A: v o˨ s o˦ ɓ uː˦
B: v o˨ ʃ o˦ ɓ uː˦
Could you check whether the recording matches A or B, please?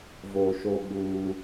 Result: B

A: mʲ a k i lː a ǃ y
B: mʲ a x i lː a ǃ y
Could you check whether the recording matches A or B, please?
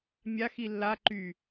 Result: B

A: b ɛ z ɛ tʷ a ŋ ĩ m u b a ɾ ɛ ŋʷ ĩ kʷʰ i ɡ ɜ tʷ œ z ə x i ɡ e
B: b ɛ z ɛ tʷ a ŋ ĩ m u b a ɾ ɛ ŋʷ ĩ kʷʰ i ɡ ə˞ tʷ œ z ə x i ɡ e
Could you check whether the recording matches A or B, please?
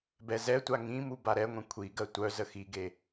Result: A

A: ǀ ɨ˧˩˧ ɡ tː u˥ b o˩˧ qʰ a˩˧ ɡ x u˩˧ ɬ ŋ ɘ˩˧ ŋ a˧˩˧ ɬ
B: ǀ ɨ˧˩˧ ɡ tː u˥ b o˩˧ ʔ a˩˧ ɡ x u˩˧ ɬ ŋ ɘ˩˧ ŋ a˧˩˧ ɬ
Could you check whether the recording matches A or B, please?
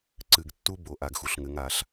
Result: B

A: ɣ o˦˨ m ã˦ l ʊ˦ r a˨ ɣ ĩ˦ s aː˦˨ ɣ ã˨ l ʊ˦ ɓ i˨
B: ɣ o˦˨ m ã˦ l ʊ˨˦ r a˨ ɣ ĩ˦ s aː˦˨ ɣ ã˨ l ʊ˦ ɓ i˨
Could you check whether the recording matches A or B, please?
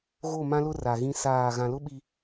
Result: A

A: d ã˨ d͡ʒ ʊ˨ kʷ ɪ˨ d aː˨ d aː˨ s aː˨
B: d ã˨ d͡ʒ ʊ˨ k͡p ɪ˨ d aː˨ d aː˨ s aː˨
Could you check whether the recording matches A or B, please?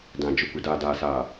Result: A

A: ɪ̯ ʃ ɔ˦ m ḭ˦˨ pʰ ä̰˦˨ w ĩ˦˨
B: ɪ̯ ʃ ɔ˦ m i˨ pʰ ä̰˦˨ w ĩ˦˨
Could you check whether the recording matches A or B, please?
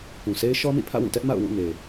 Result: A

